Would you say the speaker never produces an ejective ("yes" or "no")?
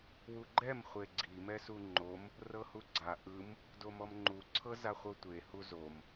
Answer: yes